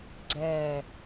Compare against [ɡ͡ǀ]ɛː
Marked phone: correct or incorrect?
correct